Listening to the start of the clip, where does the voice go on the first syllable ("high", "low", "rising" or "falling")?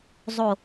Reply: falling